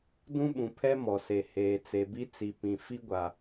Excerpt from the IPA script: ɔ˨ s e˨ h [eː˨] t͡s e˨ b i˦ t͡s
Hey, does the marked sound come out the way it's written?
yes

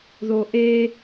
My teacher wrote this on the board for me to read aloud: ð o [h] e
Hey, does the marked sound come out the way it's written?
no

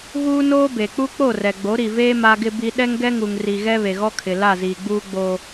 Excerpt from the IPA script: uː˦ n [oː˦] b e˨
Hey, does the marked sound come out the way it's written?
yes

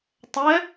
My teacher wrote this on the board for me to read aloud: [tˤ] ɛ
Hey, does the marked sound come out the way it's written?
yes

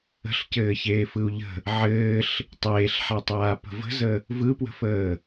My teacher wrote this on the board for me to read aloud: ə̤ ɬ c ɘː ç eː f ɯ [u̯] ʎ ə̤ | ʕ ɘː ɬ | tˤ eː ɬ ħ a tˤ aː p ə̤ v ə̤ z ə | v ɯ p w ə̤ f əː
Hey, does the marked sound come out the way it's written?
yes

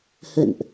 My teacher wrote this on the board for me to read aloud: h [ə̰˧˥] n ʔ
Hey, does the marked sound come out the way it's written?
no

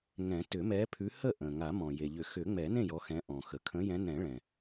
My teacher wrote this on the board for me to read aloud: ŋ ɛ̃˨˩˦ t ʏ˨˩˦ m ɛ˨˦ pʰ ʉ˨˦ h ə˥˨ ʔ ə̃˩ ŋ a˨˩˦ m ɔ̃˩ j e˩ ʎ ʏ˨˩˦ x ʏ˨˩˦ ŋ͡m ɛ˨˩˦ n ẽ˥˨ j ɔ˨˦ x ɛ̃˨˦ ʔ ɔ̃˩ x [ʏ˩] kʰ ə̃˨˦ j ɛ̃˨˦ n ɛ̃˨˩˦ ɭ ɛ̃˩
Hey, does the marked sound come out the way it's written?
no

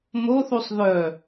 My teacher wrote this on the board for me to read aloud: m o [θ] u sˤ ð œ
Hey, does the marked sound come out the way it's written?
yes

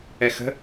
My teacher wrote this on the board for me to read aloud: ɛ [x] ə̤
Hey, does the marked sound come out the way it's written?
yes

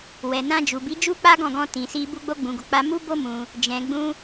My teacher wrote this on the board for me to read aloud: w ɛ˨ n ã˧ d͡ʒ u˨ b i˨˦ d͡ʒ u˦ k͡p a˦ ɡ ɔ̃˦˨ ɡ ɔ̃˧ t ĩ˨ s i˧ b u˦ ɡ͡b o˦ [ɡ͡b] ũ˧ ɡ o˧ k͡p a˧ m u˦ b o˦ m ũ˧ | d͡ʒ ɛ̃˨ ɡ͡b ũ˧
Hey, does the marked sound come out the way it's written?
yes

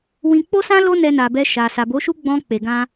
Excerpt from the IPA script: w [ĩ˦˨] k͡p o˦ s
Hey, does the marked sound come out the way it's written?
no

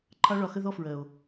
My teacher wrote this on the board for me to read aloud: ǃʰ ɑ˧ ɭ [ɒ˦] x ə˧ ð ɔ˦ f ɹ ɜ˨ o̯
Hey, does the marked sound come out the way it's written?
no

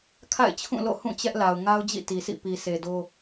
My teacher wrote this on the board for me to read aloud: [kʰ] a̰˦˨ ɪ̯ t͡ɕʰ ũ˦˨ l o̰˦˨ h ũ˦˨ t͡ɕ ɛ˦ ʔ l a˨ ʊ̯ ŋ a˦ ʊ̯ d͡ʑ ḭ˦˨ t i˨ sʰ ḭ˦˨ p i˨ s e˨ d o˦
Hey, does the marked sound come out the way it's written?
yes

